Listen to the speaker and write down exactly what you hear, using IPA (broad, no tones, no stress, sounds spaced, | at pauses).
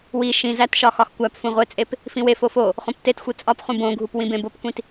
w i ʃ ĩ z æ t ʃ ɒ x ɒ x kʷ æ p f ũ ʁʷ e t͡sʼ e p | f ĩ w e f o f o | χ õ p t e t xʷ i t͡sʼ ɒ p χ ũ b õ ɡʱ u p w ĩ b ẽ b o p kʷ ĩ t